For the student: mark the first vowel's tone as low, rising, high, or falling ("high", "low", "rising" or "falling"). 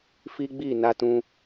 high